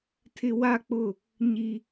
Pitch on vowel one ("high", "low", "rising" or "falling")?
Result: high